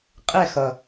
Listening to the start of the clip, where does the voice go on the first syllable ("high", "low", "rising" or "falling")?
falling